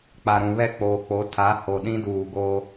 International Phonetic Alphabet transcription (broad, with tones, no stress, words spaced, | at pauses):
k͡pa˨ɾũ˨βɛ˦˨ k͡poː˨k͡po˨˦ tʰa˨˦ho˨ ɗĩ˦duː˨ɡoː˦